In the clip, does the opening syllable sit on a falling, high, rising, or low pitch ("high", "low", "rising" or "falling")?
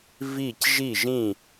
falling